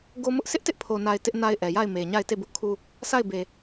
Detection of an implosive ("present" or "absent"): absent